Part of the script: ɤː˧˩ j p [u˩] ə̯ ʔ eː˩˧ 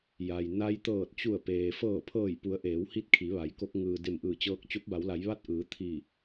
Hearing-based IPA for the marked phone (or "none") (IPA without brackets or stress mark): u˩˧